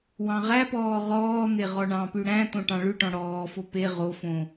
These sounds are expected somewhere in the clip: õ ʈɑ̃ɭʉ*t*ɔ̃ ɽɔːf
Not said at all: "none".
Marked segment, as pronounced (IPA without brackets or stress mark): ʈ